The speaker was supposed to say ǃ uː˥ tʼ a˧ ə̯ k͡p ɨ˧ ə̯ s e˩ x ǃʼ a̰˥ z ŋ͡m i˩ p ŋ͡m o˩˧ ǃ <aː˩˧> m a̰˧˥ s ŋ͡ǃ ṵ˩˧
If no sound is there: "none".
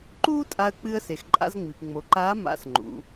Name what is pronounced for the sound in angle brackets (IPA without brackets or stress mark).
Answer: aː˧˥